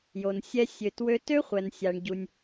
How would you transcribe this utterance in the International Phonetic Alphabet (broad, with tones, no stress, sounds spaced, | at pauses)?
j o˩ n sʲ ɛ˧ sʲ ø˩ t w ø˧ t ø˥ χʷ ɛ˩ n sʲ a˩ ɳ ɟ u˩ nʲ